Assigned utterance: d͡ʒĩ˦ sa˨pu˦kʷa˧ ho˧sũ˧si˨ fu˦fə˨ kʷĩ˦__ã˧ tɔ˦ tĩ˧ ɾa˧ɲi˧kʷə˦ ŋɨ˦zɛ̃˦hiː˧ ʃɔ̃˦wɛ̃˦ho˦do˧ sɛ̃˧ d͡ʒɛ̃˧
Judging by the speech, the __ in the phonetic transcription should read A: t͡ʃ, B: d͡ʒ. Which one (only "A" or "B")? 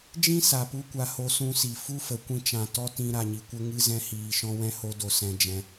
A